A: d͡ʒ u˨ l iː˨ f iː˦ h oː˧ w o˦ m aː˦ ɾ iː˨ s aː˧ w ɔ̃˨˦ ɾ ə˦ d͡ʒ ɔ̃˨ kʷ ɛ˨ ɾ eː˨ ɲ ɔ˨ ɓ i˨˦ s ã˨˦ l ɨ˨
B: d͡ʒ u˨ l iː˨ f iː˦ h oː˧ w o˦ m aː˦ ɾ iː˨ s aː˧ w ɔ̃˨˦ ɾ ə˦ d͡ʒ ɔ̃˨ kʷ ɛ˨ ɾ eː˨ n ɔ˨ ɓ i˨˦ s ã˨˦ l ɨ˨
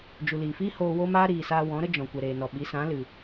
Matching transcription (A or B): B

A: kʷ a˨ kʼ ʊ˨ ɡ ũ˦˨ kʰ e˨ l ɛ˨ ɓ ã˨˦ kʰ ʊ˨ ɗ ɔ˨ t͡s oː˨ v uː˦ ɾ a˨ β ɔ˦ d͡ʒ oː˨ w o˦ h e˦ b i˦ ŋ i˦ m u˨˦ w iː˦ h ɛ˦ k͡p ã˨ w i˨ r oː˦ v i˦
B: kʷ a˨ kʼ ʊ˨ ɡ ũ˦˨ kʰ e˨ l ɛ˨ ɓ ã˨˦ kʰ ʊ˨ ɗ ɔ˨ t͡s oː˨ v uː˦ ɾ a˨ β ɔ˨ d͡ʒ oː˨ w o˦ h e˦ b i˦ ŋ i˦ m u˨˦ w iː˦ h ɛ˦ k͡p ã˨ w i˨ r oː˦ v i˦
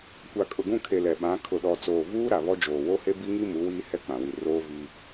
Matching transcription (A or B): A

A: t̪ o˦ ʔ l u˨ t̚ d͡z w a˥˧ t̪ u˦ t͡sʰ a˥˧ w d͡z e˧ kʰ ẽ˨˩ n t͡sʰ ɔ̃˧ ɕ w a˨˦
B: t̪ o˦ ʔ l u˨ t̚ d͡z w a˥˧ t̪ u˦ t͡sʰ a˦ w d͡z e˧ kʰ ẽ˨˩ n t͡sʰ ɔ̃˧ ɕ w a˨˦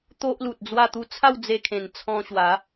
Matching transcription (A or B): A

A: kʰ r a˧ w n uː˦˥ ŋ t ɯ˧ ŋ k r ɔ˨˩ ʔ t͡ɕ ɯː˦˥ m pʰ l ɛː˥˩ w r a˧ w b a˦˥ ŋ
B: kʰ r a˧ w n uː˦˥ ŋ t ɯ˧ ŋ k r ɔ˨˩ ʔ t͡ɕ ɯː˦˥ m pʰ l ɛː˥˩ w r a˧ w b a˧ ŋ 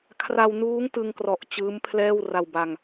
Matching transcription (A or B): B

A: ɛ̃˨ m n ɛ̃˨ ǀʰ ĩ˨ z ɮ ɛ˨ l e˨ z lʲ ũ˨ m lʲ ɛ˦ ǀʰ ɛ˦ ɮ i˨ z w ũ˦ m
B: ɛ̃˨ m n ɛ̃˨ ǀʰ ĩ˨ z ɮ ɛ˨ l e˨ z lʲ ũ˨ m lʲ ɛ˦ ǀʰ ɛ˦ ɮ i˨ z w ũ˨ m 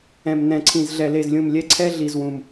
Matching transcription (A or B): B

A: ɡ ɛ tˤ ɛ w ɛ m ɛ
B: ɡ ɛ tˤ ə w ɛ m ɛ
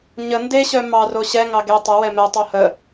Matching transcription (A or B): B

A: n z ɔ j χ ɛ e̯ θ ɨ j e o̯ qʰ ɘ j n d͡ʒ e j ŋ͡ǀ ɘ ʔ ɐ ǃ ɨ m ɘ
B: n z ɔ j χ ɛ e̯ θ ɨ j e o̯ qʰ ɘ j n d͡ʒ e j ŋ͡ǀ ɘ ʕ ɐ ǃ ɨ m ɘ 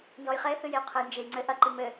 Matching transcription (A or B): A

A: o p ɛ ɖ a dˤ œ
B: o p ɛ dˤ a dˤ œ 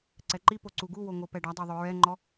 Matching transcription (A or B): A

